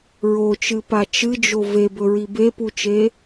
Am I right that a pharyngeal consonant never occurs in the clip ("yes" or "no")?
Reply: yes